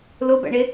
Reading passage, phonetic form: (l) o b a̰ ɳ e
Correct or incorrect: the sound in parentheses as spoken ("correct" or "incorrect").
correct